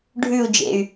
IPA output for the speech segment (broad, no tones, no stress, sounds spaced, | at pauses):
ɖʱ ʉ u̯ d͡ʒ ḛ y̯